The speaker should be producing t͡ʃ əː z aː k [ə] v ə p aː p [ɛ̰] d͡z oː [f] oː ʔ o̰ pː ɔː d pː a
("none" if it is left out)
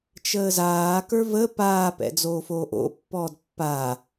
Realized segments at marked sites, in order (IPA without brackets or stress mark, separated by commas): ə˞, ɛ̰, f